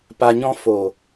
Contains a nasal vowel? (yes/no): yes